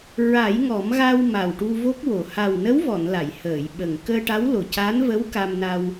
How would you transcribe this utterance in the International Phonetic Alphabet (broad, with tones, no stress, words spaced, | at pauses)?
ɹa˨˩˦jŋɔ˨˩˦mɣa˧w ma˨˩wʈu˧vo˦˥k̚wo˨˩ ha˨˩wnə˧˥wvɔ˨˩˨n la˨˩˨jhəː˨˩˨jɓə˨˩ŋ kəː˧ʈa˧˥wlo˨˩ca˧˥n və˧˥w ka˧mna˧w